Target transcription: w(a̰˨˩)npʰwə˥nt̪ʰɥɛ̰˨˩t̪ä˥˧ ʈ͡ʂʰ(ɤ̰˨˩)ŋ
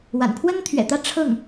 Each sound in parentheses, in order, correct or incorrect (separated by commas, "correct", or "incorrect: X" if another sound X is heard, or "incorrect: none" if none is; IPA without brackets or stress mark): correct, incorrect: ɤ˥˩